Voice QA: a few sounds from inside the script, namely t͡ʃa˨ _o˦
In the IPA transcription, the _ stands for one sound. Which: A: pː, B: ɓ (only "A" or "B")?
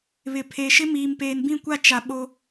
B